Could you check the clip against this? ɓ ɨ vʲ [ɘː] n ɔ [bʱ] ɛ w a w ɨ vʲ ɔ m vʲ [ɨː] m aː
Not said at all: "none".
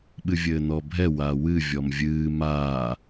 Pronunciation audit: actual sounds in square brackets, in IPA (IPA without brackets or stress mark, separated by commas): ɘː, bʱ, ɨː